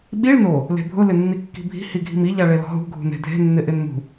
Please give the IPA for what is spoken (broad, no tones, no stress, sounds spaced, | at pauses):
ɓ i ɭ n o | l e̤ bʱ ʊ l ɪ nː i kː i̤ bʱ i̤ h i ɡʱ i̤ m i ʎ a ɭ e l ɔ̤ ɦ ṳ ɡʱ ṳ n e̤ dʱ e̤ nː ɪ ʔ ɪ n m ṳ